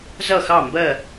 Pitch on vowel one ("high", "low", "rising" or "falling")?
falling